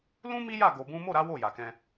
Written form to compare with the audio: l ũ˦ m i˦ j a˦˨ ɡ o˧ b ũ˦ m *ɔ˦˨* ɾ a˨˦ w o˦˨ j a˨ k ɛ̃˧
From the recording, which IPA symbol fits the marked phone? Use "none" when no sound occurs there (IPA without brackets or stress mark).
o˦˨